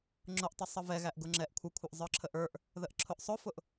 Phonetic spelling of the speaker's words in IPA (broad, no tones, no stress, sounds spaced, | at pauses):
ŋ͡ǁ ʊ ʔ tˤ ʊ sˤ ə v ɛ ɣ æ ʔ ɡ ʊ ŋ͡ǁ ɛ ʔ kʷʰ ə kʷʰ ə ʔ zˤ ə˞ ǁʰ ə ʔ ə˞ ʔ | ð ə ʔ ǁʰ ʊ ʔ sˤ ʊ f ʊ ʔ